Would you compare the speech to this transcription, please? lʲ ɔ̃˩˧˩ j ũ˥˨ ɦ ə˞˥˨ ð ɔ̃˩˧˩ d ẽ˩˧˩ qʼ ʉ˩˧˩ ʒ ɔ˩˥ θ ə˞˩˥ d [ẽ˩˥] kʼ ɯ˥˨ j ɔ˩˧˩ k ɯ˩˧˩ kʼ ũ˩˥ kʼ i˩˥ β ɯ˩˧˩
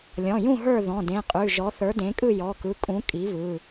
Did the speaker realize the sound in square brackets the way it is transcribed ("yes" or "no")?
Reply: yes